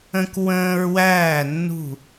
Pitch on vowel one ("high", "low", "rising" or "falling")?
high